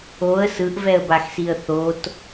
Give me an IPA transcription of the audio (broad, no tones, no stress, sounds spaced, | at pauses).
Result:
o ə̯ s ɯ ʔ v ɛ ə̯ b a x s i ə̯ θ o t